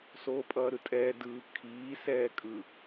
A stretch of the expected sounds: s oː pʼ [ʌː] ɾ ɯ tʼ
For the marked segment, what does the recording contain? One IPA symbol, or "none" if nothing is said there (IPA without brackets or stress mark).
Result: ʌː